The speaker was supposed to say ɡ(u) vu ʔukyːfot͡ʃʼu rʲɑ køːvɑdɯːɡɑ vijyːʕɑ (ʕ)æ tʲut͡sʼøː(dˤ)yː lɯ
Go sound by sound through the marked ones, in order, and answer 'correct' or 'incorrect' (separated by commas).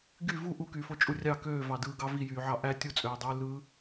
incorrect, incorrect, correct